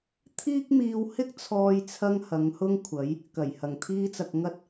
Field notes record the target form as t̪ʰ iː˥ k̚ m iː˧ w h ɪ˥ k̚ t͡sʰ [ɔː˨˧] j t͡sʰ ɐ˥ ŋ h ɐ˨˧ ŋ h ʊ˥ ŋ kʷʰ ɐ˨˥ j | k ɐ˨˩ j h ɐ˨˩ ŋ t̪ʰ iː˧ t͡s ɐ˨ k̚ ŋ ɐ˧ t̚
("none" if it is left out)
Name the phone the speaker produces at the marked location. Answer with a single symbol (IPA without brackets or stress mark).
ɔː˥